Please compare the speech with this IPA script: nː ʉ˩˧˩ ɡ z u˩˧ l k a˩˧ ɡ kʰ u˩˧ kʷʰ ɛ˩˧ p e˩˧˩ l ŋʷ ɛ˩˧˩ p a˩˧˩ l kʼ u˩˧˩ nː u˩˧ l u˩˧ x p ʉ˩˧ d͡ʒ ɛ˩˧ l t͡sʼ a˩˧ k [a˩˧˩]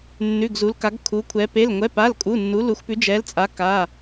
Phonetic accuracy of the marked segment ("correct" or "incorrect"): correct